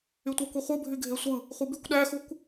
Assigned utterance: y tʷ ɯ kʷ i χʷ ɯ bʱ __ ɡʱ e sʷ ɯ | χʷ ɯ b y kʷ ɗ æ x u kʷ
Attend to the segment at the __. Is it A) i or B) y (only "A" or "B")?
B